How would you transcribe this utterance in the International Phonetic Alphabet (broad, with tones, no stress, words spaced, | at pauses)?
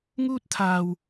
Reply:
ŋuː˥t̚t̪ʰaː˧w